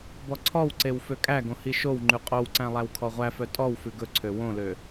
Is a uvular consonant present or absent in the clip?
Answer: present